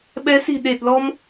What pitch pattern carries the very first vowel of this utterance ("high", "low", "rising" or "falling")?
rising